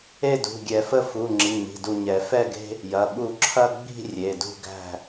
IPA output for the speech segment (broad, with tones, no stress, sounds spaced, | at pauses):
e˥˨ d ṳ˩˧˩ ɡʲ ɛ˨˩˦ f ə˥˨ f u˩˧˩ ŋ͡ǁ i˩˧˩ ɲ i̤˩˧˩ d u˧˩ ɲ ɛ˨˩˦ f ɛ˥˨ ɡ e̤˦ | j ɐ˩˧˩ ɓ u˧˩ ǁʰ ɐ˥˨ ɡ͡b i̤˥˨ rʲ e˩˧˩ d ṳ˥˨ ɡ æ̤˥˨